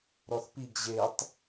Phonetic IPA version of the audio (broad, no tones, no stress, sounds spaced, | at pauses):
ɾ ɔ θ p i ɡ ʑ e tˤ